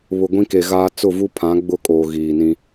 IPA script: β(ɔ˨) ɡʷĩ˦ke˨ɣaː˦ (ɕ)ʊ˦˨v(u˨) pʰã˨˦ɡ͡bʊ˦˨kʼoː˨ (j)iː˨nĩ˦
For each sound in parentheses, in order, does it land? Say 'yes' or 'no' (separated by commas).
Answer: no, no, no, no